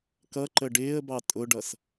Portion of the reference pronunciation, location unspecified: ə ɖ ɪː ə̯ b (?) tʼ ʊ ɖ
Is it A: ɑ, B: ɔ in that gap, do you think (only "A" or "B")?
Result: A